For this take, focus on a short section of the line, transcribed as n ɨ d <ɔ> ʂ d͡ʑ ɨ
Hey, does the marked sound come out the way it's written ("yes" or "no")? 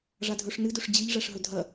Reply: no